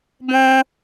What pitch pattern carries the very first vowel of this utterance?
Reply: high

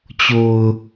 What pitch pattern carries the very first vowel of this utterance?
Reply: low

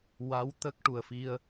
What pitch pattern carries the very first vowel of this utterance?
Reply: rising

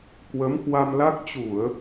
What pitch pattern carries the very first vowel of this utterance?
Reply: rising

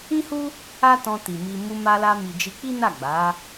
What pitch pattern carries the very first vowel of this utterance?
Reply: high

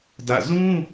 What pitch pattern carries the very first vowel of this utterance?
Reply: falling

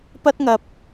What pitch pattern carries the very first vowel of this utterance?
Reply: high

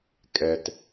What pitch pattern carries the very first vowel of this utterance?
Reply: low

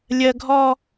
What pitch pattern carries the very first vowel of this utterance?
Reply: high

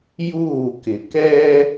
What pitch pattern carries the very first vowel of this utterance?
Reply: falling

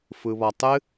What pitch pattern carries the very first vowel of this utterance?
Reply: low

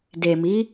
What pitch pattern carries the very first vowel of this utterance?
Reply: low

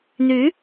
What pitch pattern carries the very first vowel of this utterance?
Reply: rising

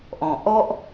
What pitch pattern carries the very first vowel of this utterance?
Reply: low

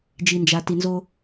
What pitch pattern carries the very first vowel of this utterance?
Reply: low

